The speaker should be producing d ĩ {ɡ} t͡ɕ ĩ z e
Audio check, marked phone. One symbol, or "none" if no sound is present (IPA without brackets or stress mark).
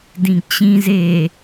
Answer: ɡ